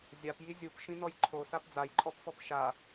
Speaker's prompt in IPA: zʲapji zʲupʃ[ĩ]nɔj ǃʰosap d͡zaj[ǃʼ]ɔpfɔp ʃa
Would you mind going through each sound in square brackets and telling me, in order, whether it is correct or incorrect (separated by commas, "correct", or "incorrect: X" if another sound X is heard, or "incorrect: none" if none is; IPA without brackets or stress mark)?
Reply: correct, correct